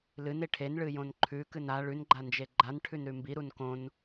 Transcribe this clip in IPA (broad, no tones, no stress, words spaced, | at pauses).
lɨne ʈʰenɭɨjõn ǃʰʉkɨn a ɭʉnɡ͡ǃand͡ʒe ɡ͡ǃanʈʰʉnɾʉ mbiɾun kõn